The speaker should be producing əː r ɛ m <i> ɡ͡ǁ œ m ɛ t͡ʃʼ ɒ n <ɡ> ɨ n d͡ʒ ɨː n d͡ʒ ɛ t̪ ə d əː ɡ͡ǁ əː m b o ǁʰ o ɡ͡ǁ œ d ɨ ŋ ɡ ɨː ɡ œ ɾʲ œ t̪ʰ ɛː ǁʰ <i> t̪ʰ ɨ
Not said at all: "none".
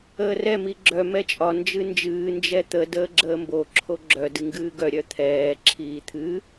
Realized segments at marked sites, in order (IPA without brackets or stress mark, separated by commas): i, d͡ʒ, iː